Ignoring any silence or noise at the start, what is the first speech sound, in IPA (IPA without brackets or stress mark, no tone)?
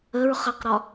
ə